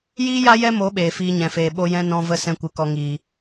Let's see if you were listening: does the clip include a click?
no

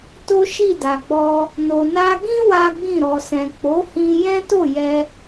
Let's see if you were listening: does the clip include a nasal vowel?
yes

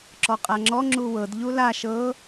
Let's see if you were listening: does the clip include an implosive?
no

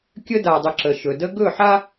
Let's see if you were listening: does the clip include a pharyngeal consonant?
yes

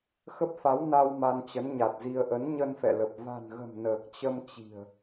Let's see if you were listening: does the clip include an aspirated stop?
no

